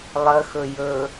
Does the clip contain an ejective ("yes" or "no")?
no